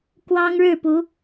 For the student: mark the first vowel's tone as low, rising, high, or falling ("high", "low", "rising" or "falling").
high